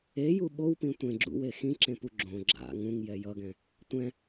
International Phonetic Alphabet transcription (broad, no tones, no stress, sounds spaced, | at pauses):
e j u ɓ o w p ĩ tʷ ẽ ɡ͡ǁ ṵ w e x ĩ ǁ ẽ p u ɡ͡ǁ õ ɡ͡ǁ a̰ ŋ ũ ŋ j ɛ j ʌ ɡ ɛ̃ | tʷ ɛ̃